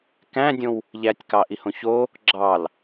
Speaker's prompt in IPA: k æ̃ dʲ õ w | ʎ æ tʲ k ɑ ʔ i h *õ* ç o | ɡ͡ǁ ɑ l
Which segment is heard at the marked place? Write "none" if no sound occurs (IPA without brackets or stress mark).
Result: õ